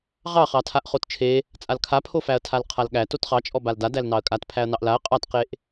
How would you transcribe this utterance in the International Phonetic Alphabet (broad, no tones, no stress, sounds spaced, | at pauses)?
ʁ ɑ χ ɑ tʰ a ʔ χ o t t͡ʃʰ e | t͡sʼ a l kʰ a pʰ o f æ ɐ̯ tʰ a l qʰ a l ɠ æ t o t χ ɑ t͡ʃʼ ɔ b a l d a d æ l n ɑ ɐ̯ kʼ a t pʰ æ ɐ̯ n ɑ ʔ l a ɐ̯ qʼ ɑ t q e ʔ